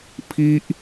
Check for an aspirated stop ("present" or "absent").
present